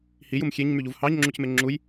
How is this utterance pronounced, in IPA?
h i j u m xʲ e ɲ m y ʎ u v h ɑ ɲ ŋ͡ǁ u c m e ŋ͡ǁ u j

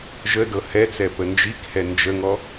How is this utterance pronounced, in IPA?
ʒ ə d ɤ h ɛ t͡s ɛ p ə n d͡ʒ i k h ɛ n d͡ʒ ə ŋ ɔ

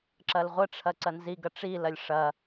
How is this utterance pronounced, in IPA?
ǁ ɐ l ʁʷ ə ʈ͡ʂʰ ɐ ǀ ɐ n z i ɡ ɐ ʈ͡ʂ i l ɐ lʲ ʂ ɐ

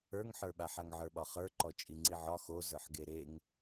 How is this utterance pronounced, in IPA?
ə˞ ŋ ħ ə˞ ɓ a ħ a ŋ ʕ ə˞ ɓ ɒ χ ə˞ ǃ ɔ t͡ʃʼ i ŋ͡ǀ i ʕ ɒ x o z ə˞ ħ ɡ e ɾ e ŋ

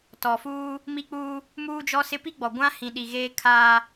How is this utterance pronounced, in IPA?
t ɔ˨ f uː˦ | m i˦ k͡p uː˦ | m uː˦ d͡ʒ ɔ˦ s ɪ˦ p i˦ ɡ͡b ɔ˨ ɡʷ ã˦ h ĩ˨ ɗ i˨ ɣ eː˦ kʰ aː˦

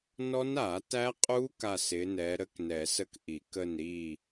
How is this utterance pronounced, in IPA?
n ɔ˦˥ n a˨˩˦ t æ˦˥ qʼ u˦˥ k a˦˨ s ɪ˨˦ n ɛ˨˦ ɾ ə˦˥ k n ɛ˨˩˦ s ə˦˨ k ʔ i˨˩˦ k ə˦˨ n ɾ i˦˨

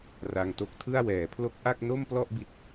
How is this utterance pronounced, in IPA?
r a˧ ŋ t o˦˥ k̚ tʰ ɯ˥˩ a̯ w ɛː˩˦ pʰ l o˦˥ k̚ ʔ a˥˩ k̚ n o˥˩ m p l ɔ˥˩ ʔ b i˦˥ t̚

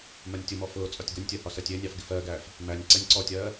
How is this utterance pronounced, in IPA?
m ɜ nʲ tʲ ʊ m ɔ f ʊː t͡sʼ ɒ tʲ ɡ ʊ nʲ tʲ ɜ h ɒ s ɜ tʲ ɪː nʲ ɑ f ɡ ɪ f ɜː ɡ æː f | m æ nʲ ǀ ɛ nʲ ǀ ɔ tʲ ɜː

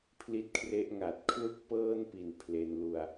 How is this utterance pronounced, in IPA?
pʰ l i˦˥ t̚ kʰ r e˦˥ ʔ ŋ a˨˩ t̚ kʰ l u˥˩ k̚ p ɤː˥˩ n p i˨˩ n pʰ l e˧ n l u˧ a̯

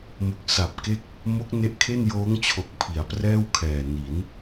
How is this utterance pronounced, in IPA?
m o˨˩ k̚ s a˨˩ p̚ k e˥˩ k̚ | m o˦˥ k̚ n e˦˥ ʔ kʰ e˥˩ n j oː˦˥ ŋ t͡ɕʰ o˨˩ k̚ pʰ i˩˦ a̯ p r ɛː˥˩ w kʰ ɛː˨˩ n i˩˦ n

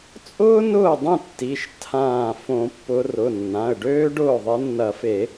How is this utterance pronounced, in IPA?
t͡sʼ ʊː˥ n ʊː˥˩ dˤ ĩ˥˩ tː i˩˧˩ ʃ tʰ ãː˧˩ f õ˨˩˦ pː ʊ˨˦ r ʊ˩˧˩ nː ã˩˧˩ ə̯ ɖ øː˥ ɖ ʊː˥˩ ðˤ e˨˦ nː ɐ˨˩˦ f e˨˩˦

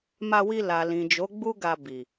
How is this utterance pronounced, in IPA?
m a˧ w i˧ l a˨ l ĩ˨ d͡ʒ o˨˦ ɡ͡b u˦ ɡ a˧ b i˨

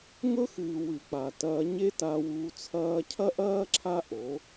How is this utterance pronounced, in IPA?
ŋ ɵ˦ x ɨ˨ w ʉ˨ k͡p a˨ t ɐː˧ ɲ e˦ t a˧ w uː˧ t͡sʰ ɐː˧ cʰ ɐ˦ ʔ ɐː˦ ǁʰ a˦ ʔ o˨˦

